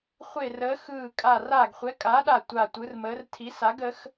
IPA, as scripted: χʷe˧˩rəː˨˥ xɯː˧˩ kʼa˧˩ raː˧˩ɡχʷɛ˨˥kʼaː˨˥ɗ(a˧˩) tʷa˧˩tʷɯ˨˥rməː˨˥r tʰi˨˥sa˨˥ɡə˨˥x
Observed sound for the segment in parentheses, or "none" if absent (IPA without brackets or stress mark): a˧˩